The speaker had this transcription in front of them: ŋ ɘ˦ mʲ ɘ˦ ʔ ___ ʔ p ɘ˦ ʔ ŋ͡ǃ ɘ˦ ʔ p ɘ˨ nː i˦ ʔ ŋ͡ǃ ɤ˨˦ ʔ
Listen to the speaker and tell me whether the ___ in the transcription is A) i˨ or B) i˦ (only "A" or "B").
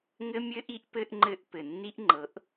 B